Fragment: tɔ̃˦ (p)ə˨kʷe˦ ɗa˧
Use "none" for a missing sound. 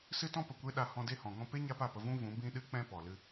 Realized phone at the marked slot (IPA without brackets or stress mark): p